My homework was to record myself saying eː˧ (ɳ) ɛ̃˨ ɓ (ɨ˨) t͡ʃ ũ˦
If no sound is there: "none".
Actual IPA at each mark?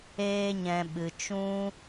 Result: ɲ, ɨ˨

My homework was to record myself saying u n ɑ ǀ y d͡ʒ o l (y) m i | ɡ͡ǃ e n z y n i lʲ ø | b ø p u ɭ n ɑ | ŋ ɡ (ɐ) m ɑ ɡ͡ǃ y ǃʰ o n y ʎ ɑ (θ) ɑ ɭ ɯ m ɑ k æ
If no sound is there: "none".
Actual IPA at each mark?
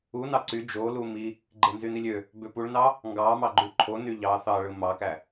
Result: u, ɑ, θ

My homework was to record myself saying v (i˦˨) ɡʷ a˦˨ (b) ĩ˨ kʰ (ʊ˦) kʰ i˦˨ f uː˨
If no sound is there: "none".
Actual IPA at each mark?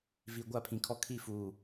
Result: i˨, pʰ, ɔ˦

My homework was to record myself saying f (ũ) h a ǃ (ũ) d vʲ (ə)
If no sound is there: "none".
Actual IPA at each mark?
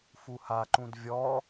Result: u, ũ, ɔ

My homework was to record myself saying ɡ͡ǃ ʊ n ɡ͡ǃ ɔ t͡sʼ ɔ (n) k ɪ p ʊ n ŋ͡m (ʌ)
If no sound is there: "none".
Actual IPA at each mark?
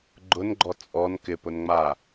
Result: n, a

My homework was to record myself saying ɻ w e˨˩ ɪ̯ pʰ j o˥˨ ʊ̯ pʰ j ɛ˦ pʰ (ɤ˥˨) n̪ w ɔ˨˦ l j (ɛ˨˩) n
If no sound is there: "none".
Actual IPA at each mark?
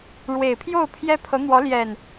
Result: ɤ˨˦, ɛ˨˩

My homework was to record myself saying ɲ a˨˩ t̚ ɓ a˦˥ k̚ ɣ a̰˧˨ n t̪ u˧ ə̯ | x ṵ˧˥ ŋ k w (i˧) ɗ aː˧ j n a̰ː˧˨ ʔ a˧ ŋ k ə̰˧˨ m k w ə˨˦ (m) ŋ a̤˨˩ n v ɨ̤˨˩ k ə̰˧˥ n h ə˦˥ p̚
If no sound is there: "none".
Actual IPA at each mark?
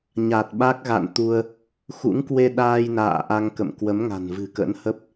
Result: e˧, m

